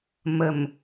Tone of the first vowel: low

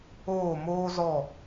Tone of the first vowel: falling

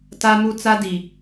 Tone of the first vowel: high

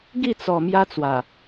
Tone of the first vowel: falling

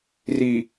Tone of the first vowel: low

